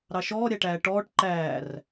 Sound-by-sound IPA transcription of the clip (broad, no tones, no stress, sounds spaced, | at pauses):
ɾ ɑ ʃ ɔː ɾʲ æ ʈ æː ʈ ɔː ʈ ǃ æː r